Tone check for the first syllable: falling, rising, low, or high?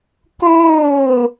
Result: falling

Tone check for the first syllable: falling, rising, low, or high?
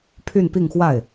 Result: falling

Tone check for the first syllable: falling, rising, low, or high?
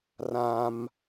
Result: high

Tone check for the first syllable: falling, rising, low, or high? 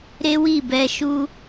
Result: high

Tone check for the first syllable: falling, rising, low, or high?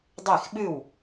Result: falling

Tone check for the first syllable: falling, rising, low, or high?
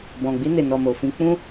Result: low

